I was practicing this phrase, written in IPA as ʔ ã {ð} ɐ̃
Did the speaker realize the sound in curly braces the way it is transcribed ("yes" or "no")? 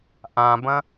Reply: no